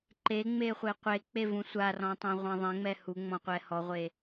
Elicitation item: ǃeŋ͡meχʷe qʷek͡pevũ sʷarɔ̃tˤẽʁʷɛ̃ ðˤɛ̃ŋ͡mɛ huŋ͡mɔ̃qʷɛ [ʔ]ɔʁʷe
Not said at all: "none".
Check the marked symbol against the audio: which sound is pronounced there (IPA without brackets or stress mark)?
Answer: h